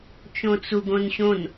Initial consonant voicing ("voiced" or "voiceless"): voiceless